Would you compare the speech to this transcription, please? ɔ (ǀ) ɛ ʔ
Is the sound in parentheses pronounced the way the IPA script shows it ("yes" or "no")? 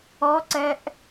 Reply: yes